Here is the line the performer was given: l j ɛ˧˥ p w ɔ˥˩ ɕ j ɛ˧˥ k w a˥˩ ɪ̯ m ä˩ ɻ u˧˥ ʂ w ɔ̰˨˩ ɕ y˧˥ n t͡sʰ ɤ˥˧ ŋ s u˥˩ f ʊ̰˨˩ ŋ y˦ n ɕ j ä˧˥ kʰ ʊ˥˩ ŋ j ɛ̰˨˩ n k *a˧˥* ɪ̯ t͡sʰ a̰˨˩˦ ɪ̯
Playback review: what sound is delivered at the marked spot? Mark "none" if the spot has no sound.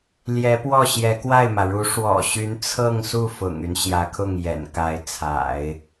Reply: a˧˥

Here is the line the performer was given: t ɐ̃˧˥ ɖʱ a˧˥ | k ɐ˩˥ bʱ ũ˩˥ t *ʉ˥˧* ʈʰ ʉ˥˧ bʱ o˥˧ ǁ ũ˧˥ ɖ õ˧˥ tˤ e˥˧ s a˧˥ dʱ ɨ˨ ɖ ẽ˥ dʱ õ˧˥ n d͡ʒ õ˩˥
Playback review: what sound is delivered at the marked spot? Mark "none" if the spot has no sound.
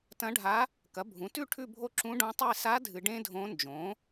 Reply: ʉ˥˧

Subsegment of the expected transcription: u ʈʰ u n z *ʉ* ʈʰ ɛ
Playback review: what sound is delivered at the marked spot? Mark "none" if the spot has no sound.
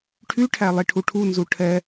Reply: u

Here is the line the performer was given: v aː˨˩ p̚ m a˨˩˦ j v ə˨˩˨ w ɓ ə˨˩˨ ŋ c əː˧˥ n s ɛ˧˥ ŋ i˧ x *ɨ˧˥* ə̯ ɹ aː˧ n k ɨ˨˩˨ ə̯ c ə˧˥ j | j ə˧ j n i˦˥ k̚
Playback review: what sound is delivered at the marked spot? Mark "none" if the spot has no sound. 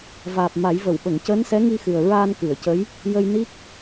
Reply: ɨ˨˩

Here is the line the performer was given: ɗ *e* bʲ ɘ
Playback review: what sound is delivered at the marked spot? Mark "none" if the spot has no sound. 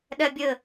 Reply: ɛ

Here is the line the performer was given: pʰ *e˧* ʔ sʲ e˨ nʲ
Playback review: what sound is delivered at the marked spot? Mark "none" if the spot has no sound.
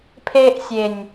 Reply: e˧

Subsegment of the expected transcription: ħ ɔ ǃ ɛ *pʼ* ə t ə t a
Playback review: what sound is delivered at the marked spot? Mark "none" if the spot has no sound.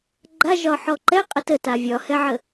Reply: qʼ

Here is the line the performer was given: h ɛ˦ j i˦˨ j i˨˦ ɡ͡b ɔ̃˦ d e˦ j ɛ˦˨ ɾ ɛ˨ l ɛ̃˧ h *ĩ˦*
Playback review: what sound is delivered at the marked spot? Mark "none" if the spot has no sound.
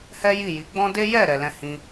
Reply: ĩ˧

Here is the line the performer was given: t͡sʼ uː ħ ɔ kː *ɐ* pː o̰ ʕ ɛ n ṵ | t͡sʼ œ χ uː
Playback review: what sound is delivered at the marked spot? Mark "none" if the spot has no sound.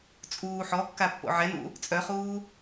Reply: a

